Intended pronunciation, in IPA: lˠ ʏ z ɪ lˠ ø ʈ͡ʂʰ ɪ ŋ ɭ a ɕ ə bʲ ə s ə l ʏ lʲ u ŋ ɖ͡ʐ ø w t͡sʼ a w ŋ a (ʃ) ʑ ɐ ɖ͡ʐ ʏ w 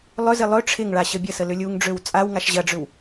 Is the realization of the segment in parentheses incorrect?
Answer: no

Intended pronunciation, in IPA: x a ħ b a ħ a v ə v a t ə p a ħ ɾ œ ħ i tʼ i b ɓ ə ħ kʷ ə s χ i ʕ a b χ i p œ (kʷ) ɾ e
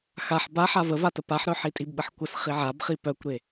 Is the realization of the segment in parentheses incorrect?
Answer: no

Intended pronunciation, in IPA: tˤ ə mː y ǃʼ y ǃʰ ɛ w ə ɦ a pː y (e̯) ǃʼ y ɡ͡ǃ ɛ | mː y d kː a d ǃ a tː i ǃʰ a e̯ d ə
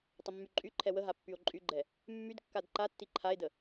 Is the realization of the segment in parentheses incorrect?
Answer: yes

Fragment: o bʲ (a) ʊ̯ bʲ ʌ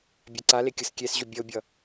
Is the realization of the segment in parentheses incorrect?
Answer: yes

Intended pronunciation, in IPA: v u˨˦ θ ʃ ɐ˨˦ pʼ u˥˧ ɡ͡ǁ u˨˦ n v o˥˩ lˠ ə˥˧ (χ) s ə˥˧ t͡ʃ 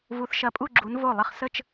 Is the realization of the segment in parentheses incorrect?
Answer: no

